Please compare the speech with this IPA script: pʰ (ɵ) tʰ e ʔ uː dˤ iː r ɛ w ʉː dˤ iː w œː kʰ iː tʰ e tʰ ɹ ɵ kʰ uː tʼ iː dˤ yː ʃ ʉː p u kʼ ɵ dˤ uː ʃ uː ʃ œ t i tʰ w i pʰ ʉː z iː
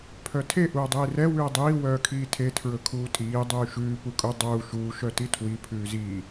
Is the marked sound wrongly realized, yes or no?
yes